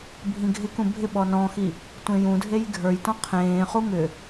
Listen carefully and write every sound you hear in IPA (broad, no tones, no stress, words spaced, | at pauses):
bʱĩɡʱɪkũ bʱɪ ɓɔnɔ̃xi | tʷẽjũdʱej ɡʱə˞jtɔ̃ qʰẽːχu ŋʏ